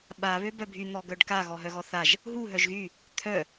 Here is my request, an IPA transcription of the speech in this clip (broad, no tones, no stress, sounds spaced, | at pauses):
ɓ a β ø b œ bʱ y n̪ ɔ ɡ œ ɖ k a ɣ ɔ ɦ œ ɣ ɔ θ a ʒ | ɦ u ɦ œ ʒ ɣ y | t̪ʰ œ